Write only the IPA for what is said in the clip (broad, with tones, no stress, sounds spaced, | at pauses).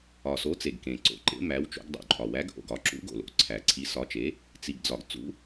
ɒ˨˩ s o˨˥ t͡s e˨˩ ɡ k ẽ˨˩ ǀ o̰˨˩ ǃ ḛ˨˥ m æ˨˥ w t͡ʃ o̰˨˥ ɡ dˤ ṵ˨˩ ǃʼ ɒ˨˩ w æ˨˥ ɡ ʔ o̰˨˩ ɡ ɒ˨˥ ǁ ṵ˨˥ ɡ o̰˨˩ l o̰˨˥ ǀʰ æ˨˩ ǀʰ i˨˥ s ɒ˨˥ t͡ʃ e˨˥ | t͡s i˨˩ ɡ d͡z ɒ˨˩ ɡ t͡s ṵ˨˥